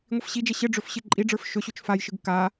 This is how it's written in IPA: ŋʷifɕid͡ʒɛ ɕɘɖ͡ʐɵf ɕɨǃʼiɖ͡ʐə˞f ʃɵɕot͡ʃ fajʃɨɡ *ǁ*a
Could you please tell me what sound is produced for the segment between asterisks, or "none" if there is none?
k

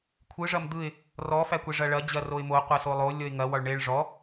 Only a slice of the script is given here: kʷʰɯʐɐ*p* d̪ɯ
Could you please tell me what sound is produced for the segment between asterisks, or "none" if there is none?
m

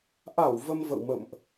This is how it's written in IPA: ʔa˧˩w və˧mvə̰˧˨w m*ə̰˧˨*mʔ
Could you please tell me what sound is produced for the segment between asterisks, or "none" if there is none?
ə̰˧˨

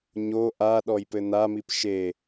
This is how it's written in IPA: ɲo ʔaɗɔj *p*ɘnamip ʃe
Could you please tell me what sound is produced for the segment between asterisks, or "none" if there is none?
p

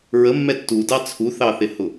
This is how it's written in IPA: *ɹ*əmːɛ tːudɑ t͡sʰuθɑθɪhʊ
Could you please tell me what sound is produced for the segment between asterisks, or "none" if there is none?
ɹ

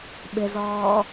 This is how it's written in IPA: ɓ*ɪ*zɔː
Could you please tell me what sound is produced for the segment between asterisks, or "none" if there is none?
ɪ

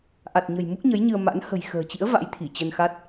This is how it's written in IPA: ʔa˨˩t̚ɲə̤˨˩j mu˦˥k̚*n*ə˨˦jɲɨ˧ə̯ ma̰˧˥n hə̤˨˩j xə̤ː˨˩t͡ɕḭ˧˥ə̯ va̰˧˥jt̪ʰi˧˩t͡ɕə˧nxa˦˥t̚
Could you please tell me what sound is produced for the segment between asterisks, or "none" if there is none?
ɲ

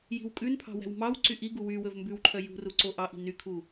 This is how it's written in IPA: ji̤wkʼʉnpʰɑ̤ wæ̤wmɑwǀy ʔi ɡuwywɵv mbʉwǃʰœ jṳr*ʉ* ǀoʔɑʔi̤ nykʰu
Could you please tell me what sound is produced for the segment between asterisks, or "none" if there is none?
u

